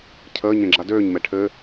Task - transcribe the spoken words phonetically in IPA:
cʰəːɲẽ ɡ͡ǁadøːɲmɛ ʈʰɘ

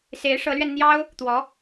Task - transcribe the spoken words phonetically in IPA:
se˧˥ɪ̯ʂɤ˧˥lɥɛ˧nn̪jɑ˥ʊ̯ | t̪wɔ˧˥

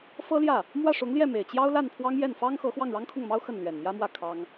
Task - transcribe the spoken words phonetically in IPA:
fɤ˥ljä˥˩ | mwä˥˩ʂʊ˧˥ŋljɛ˥˩me˨˩ɪ̯ t͡ɕjɑ˥ʊ̯la˥˩n pʰwɑ˥ŋjɛ˥˩n fɑ˥ŋxɤ˧˥ xwɑ˥˩ŋɻɑ˥ŋkʰʊ˥˩ŋmɑ˥ʊ̯ xə˥˩n lɥɛ˨˩nmjä˥mwä˥˩ kʰɑ˥ŋ

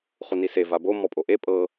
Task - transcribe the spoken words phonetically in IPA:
χunise vabo mɔpʼoʔe pʼɤ

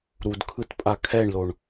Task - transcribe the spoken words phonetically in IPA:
ɾudkʰɯtpʼa kʰɛɳloɳ

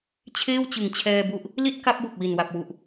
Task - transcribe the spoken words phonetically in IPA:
t͡ɕʰeː˥˩wt͡ɕɯ˨˩ŋt͡ɕʰɛː˧bu˦˥ʔ | li˥˩t̚ka˦˥p̚bo˨˩k̚wi˨˩n wa˨˩p̚wu˨˩ʔ

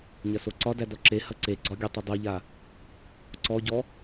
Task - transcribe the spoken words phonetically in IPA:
ɲɐsoǀɒdæ dɔǁehɐ ǀeɡ͡ǀɒ ɡʲə tˤɐdˤoʎa | ǀɔɟɔ

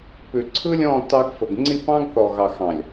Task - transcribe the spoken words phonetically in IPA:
pʉ˨ǀʰɯ˦ lʲɔ̃˦˨ tɑ˦ɡfə˨ɡ ŋ͡ǀi˦˨pɑ̃˦ɡθɔ˨ ɣɑ˨xɑ̃˨lʲ

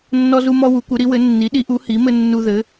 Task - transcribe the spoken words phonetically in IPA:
nːɔ˦zu˦mɔ˦ wu˩˥kʷɘ˩˥ɾi˩˥wɘ˩˥ nːi˩˥ɗi˩˥ʔu˩˥ hi˩˥mɘ˦ nːu˦ðɘ˩˥

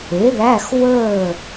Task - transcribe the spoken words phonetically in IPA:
e˩˥ðæ˧˥˧x wəː˥˨

